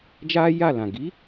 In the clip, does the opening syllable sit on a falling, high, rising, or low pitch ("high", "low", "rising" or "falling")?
high